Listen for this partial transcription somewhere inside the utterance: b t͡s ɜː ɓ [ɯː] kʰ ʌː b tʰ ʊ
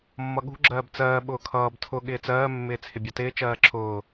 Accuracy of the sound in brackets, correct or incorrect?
incorrect